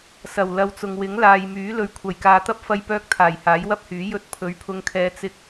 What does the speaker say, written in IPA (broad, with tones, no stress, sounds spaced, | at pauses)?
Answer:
s ɐ˨˩ w l ɐ˧ w t͡s ʊ˨ ŋ w ɪ˨˥ ŋ l aː˨ j m yː˨˥ l ɵ˨ ɥ kʷʰ ɐ˨˩ j k aː˨˧ t̪ ɐ˥ p̚ f ɐ˧ j p œː˧ k̚ t̪ʰ aː˨˩ j h aː˨˥ j w ɐ˥ p̚ h yː˨˥ j ɵ˧ t̚ pʰ ɵ˨˥ ɥ pʰ ʊ˧ ŋ kʰ ɛː˧ t͡s ɪ˥ k̚